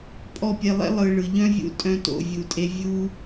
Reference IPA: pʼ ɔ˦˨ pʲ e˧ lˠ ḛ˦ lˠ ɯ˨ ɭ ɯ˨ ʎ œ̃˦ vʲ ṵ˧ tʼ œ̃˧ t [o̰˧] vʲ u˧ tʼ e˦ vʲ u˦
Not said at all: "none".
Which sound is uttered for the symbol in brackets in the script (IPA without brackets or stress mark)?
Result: o̰˧